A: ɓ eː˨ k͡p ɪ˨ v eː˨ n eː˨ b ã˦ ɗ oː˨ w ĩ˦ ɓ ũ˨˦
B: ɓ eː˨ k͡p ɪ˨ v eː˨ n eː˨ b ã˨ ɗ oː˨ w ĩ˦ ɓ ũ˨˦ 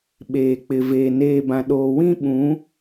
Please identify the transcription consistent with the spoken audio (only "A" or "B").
B